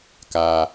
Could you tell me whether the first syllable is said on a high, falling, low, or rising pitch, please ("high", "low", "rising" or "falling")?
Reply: low